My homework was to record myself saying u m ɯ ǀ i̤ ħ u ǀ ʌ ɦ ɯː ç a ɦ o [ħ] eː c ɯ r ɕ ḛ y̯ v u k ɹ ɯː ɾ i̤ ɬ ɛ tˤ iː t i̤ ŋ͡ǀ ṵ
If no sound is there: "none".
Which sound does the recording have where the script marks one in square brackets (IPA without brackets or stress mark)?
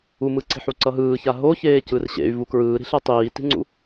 ç